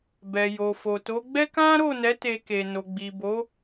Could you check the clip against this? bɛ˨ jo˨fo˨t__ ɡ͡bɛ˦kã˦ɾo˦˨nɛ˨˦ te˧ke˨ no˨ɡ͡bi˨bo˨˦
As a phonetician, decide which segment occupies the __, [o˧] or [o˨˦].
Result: o˨˦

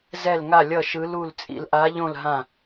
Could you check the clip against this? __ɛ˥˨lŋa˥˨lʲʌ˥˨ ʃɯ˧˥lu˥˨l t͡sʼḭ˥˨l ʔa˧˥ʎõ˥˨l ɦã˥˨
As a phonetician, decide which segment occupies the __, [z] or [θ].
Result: z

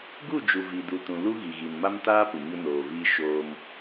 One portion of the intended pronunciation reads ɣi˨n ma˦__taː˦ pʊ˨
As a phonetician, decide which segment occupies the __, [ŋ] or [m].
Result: m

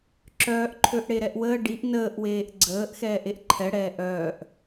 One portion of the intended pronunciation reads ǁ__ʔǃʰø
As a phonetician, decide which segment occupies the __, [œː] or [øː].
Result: œː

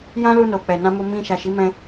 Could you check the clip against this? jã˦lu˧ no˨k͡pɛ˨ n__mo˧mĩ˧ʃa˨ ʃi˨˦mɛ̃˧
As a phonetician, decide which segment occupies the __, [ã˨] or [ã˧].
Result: ã˧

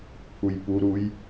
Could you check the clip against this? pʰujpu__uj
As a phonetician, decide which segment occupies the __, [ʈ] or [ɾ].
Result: ɾ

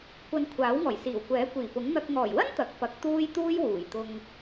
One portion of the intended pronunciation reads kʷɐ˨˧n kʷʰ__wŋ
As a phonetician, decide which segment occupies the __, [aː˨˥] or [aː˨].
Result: aː˨˥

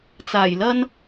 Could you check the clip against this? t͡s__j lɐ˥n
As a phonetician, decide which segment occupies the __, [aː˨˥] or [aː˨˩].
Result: aː˨˩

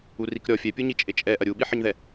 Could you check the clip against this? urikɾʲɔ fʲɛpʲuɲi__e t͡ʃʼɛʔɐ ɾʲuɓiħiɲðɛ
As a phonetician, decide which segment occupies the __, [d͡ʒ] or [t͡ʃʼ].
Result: t͡ʃʼ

